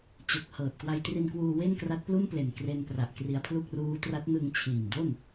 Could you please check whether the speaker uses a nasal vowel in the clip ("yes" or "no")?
no